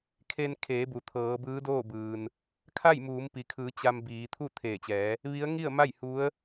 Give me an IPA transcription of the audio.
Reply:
kʰe˧nkʰeː˩˧bu˩ t̪ʰɤː˩˧bɯː˧˥doː˥˨bɯː˩n | kʰa˥˨j muː˩˧mpi˩kʰɯː˩˧ t͡ɕa˧mbiː˩˧ t̪ʰu˥˨t̪ʰeː˧˩t͡ɕɛː˩˧ | ʋi˧˥ə̯ ŋi˥˨ə̯ma˥˨j hu˧˥ə̯

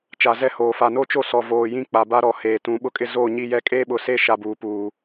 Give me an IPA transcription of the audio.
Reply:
t͡ʃa˨zɛ˦˨hoː˨ fa˨no˦t͡ʃo˦sɔ˨ voː˨jĩ˦k͡pa˨ ba˦ɾɔ˨ heː˨tũ˨˦ ɓʊ˦kʼɪ˦ zoː˦˨ɲi˦˨jɛ˦ kʼeː˦ɓʊ˨ seː˦ʃa˨ buː˨puː˨

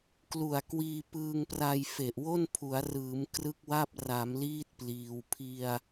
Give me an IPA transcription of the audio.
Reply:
klu˨˩a̯kwiː˧ pɯː˧ŋpra˧j fe˨˩ʔwo˥˩n pʰu˩˦a̯rɯː˩˦m krɯ˥˩k̚wa˥˩p̚ ra˩˦mliː˦˥t̚ pliː˧w pʰi˧a̯

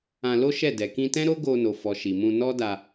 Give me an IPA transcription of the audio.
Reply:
ã˧lo˦ʃɛ˦˨ dɛ˨kĩ˧tɛ̃˦ɾo˦ ɡo˧no˨fɔ˨ ʃi˨mũ˧nɔ˦da˧

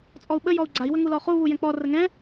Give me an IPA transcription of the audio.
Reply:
t͡sʼɔu̯ɓə jɔu̯ɡ͡ǀai̯ wəŋulɔχu βujɛ̃k͡pɔ rəŋɛ̃

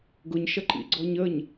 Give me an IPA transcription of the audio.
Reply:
ɡʊɲʃʌǃḭɡ͡ǀɔɲ əɲ

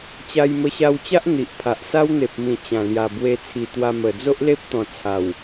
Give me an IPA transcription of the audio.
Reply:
t͡ɕa˧jmə˧ɕa˧wt͡ɕa˦ʔ n̪i˨ʔpʰa˨ʔ sa˦wn̪e˨p̚mĩ˨˩ t͡ɕã˨˩ lja˨˩bwe˧t͡sʰi˨˩ t̪wa˧mə˨˩ d͡zo˦ʔle˦p̚t̪ɔ̃˨˩ t͡sʰa˨˩w

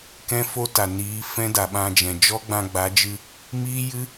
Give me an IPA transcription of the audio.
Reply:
kɛ̃˦fo˦ta˨ niː˨˦ fɛ̃˦da˨ɓã˧d͡ʒɛ̃˨ d͡ʒɔ˦ɡ͡bã˧ɡ͡ba˨˦d͡ʒɨ˧ | miː˦jɨ˦

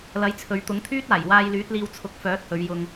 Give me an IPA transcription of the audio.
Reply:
lɐ˨˥jt͡sʰɵ˨˧ɥt̪ʊ˨˥ŋt̪ʰyː˥t̚ aː˨˩jwaː˧jlyː˨˥t̚liː˧w t͡sʰʊ˨˥k̚fœː˨˥t̚hɵ˨˧ɥ jʊ˧ŋ

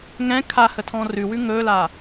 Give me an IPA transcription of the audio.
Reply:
ŋɛ̃ kʰahətʰɔ̃ rʉwʉ ŋɵːla

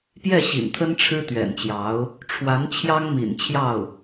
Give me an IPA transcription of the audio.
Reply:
pjɛ˥˩ɕḭ˨˩nt̪ʰə˥n ʈ͡ʂʰɻ̩˥t̪ɥɛ̰˨˩nt͡ɕjɑ˧˥ʊ̯ | ʈ͡ʂʰwa˧˥n t͡ɕʰjɑ˥ŋmḭ˨˩nt͡ɕʰjɑ˥˩ʊ̯

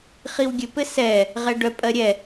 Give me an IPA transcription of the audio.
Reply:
χiwɡʲɘ pɘsɛ | ʁɛɖœ pʼɜɾʲɛ

